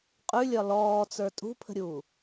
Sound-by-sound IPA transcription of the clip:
qʼʉlʲɒ lɔːt͡sə˞ tʼṳpʰə̤ɾʲuː

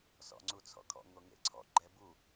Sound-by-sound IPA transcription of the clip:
sɔ̰ŋ͡ǀut͡sʰɔ̰kʰɔ̰ ŋoŋḛǀʰɔ̰ ɡ͡ǃɛbu

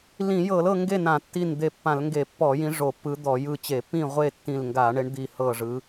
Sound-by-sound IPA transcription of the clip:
lĩ˧˩˧jɤ˧˩˧lɤ˥˨ ŋɡe˥˨nã˧˩˧tːi˧˩n d̪e˧˩pːã˧˩˧lŋɡe˧˩˧ pːɔ˧˩˧jĩ˨˦ ʐo˧˩˧pːɯ˨˦d̪ɔ˧˩˧ jɯ˧˩t͡ɕe˧˩˧pːĩ˥˨ʁʷe˥˨ tːĩ˧˩lŋɡa˧˩˧ɳe˨˦ɳ d̪i˧˩hɤ˧˩ʐɯ˨˦

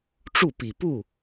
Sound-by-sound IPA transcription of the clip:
ʈ͡ʂu˥˩pi˨˩pu˥˩

